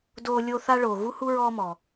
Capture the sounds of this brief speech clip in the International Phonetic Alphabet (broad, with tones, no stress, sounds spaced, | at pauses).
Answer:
d oː˧ lʲ o˧ θ a˧ ɭ oː˩ ɣ u˧ h u˧ ɹ ɔː˧ m ɔ˩